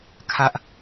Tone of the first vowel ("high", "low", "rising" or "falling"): high